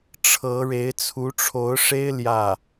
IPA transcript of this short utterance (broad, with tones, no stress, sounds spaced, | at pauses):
ʈ͡ʂʰ ɤ˧˥ ɻ e˧˥ ɪ̯ t͡sʰ u˧˥ ʈ͡ʂʰ o˧˥ ʊ̯ ʂ e˥ ɪ̯ l j ä˥˩